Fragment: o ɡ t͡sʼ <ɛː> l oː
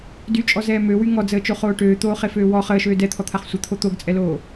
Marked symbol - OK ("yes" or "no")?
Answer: no